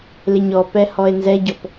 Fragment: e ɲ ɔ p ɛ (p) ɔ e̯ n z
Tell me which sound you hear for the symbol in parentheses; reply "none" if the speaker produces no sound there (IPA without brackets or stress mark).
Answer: h